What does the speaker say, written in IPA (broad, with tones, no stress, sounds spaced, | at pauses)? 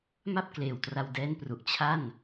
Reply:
m a˥˩ p̚ k l eː˨˩ w t r a˧ w d ɛː˦˥ n p r u˨˩ ʔ t͡ɕʰ a˥˩ n